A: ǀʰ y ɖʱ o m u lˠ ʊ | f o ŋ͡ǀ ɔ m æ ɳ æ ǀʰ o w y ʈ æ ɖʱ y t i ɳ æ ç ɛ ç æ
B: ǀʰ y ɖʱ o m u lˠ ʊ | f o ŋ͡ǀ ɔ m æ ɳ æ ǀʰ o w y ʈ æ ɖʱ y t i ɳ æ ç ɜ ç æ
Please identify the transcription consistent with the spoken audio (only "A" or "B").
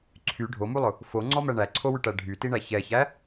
A